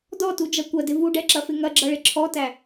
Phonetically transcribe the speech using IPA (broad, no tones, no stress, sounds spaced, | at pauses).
d ɔ t u d͡ʒ ʌ kʷ ɐ d ɪ v u ɖ ɛ ǁ ɐ f ɪ ŋ ɐ ɡ͡ǁ ʌ ɭ ɪ ǁʰ ɔ t æ